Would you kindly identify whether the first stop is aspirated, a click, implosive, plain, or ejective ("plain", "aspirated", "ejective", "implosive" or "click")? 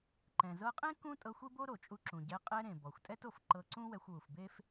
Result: click